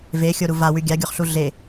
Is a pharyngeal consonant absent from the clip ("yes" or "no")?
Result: yes